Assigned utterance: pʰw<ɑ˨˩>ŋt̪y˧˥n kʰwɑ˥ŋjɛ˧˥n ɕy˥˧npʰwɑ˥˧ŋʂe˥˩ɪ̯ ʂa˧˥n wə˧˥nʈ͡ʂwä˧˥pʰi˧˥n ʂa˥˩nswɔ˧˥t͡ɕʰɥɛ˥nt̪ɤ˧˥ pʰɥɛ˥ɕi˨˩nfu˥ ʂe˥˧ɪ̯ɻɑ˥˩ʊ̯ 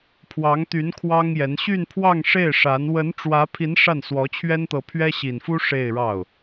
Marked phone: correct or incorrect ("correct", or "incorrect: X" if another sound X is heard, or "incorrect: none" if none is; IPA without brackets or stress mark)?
incorrect: ɑ˧˥